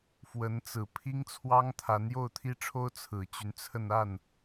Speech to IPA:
fwə˧˥nt͡sɹ̩˨˩ pʰi˥ŋt͡sʰwɑ˥ŋ t̪ʰa˧˥njo˥˩ʊ̯t̪ʰi˥ʈ͡ʂʰo˥ʊ̯ t͡sʰɹ̩˨˩t͡ɕy˦nt͡sʰə˥˧n a˥˩n

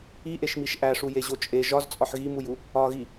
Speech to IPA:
iʔeʃmiʃ ʔæʂujeʑo t͡ʃʼe ʒɒzt͡sʼɒħ ɣimuju | ɒɣi

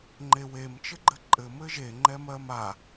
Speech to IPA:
ŋ͡ǃewemt͡ʃɘɡ͡ǃɘ ǃʼɘ mɘʒe ŋ͡ǃɛmɜma

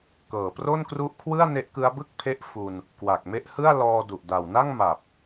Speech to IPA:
kɤː˨˩pro˥˩nkru˦˥ʔkʰwɯ˥˩a̯ ne˦˥ʔkɯ˦˥a̯bɯ˥˩k̚pʰe˦˥ʔ fu˧n | kwa˨˩k̚me˦˥ʔhɯ˥˩a̯ lɔː˧du˨˩ʔ da˨˩wna˥˩ŋma˨˩p̚

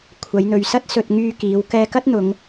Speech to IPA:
kʷʰɐ˨˧jn̪ɵ˨ɥsɐ˥t̚ sɵ˧t̚ ŋyː˧kiː˨˧w kɛː˧kɐ˥t̚ n̪ʊ˨˧ŋ

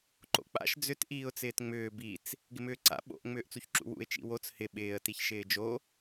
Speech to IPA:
ǃo̰k͡pa̰ʃ d͡zʏt ʔiːʊ̯t͡sɪːtŋ͡mʏː bit͡s | ɡɪmʏːǀa̰ ɓo̰ʔ ŋ͡mʏːʔt͡suçǁṵwṵɪ̯ t͡ʃḭwot͡s hɪ ɓɪːə̯tiç ʃɪːd͡ʒo

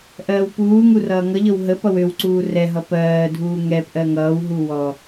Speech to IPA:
ʔɜːwpuːŋu rʌːŋʌʎɤw ɦə pʌwøwǀuː rɛɦʌ pɜːdʱuː ŋɛp ʔɜŋʌːwɦu wɔ

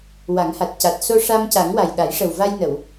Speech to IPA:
wa˨˩˦ŋha˨˩t̚ ca˨˩t̚ so˧ʂa˧mca˨˩˦ŋwa˨˩j ɗa˨˩˦jʂə˨˩wva˧jnə˨˩˨w

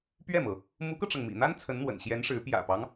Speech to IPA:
pɥɛ˥˩mɤ˩ | mu˧˥kɤ˧ʈ͡ʂɤ˩ŋ mḭ˨˩n̪a˥n t͡sʰə˧˥nn̪wə̰˨˩nɕjɛ˧˥nʂɻ̩˧˥ pjä̰˨˩pɑ˦ŋ

